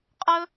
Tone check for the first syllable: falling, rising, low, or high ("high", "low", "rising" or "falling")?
high